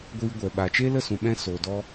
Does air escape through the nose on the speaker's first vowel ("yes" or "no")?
no